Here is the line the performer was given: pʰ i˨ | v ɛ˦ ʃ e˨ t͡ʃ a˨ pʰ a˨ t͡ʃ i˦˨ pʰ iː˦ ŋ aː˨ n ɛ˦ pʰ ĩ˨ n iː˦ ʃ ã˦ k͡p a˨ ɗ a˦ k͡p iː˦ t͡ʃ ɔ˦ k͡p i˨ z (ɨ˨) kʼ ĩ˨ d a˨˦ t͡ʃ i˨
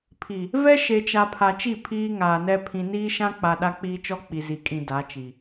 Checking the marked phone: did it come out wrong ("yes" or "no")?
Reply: yes